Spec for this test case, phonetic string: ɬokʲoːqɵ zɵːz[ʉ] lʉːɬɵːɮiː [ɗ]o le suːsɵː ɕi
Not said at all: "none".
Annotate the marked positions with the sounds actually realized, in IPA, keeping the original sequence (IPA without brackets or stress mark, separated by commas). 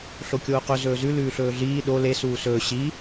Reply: ʉ, ɗ